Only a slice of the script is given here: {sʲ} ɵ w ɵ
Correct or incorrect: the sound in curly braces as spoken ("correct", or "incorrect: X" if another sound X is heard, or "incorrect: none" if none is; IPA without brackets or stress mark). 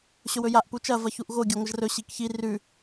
incorrect: ɕ